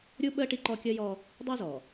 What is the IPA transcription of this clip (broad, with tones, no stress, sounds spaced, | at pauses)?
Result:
ɾʲ u˦ ɓ əː˦ ʈ i˦ ǃ ɔ˦ kʲ əː˦ j ɔ˦ | dˤ iː˦ z ɔ˨